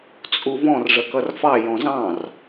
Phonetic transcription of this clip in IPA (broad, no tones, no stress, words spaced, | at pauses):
t͡sʼuvɔ̃r ʐəkʌrfɑ jɔ̃zɑ̃r